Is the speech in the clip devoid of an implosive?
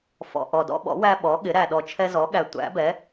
no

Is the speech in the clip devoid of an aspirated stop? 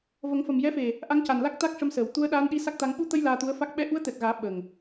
yes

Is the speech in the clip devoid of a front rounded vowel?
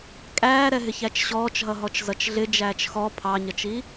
yes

